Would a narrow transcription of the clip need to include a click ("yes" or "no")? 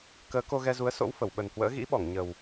no